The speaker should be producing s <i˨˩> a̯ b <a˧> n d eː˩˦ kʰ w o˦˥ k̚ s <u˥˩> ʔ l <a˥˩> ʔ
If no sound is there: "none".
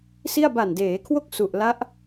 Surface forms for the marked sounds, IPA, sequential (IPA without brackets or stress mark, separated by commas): i˥˩, a˨˩, u˨˩, a˦˥